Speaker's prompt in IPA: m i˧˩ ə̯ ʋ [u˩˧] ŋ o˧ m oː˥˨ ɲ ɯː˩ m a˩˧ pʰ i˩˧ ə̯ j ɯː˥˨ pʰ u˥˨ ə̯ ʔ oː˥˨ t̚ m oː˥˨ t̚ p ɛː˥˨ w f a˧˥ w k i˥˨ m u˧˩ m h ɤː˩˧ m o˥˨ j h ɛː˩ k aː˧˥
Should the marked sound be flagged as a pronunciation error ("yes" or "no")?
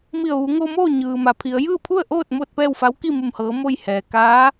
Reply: no